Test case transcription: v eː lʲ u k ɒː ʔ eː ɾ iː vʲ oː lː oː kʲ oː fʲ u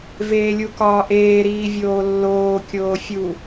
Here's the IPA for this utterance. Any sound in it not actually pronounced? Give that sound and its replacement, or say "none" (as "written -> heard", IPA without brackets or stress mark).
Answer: none